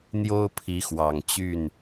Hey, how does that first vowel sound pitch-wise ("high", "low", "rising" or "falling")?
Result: high